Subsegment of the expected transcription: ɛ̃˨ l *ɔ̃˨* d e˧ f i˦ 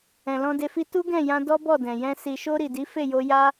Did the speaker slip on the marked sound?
yes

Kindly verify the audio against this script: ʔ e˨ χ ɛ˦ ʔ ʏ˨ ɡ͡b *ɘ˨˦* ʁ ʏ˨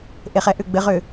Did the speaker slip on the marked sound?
no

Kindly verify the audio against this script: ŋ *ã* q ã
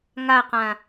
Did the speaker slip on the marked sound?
yes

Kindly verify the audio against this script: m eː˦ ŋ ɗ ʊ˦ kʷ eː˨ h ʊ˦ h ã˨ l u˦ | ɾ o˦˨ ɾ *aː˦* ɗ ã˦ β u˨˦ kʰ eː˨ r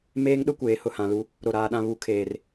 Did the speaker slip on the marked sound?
no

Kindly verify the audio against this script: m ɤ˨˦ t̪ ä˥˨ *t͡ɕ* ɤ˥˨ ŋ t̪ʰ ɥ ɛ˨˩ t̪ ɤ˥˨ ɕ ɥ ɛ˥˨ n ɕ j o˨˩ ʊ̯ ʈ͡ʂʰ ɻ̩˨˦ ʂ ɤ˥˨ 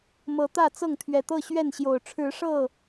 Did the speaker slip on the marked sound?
yes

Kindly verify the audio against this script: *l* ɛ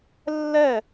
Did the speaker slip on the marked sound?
yes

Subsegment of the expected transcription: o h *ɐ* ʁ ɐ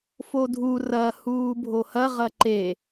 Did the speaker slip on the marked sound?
no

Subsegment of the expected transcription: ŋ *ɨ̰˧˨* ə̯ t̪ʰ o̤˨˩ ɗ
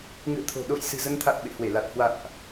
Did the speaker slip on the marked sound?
no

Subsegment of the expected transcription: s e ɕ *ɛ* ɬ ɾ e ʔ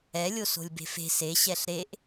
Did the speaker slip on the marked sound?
no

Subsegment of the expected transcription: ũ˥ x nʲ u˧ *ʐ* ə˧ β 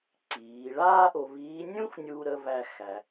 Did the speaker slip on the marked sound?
yes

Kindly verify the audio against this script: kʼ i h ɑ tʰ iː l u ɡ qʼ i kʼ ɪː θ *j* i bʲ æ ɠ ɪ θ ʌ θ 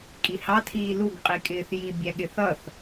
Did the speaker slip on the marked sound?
no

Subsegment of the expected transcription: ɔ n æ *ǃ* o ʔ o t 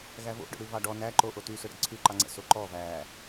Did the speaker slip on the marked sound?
no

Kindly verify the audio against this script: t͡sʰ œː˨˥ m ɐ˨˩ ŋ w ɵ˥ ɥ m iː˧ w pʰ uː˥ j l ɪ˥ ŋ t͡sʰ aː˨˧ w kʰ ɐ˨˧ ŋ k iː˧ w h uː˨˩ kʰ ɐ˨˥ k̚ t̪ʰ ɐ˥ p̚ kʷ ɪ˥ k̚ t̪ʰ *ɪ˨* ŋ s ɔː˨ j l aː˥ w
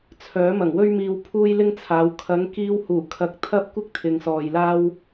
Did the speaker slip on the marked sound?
no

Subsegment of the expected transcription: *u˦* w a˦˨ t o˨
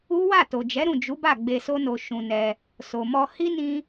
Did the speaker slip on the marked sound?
no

